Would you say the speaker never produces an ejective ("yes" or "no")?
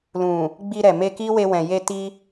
yes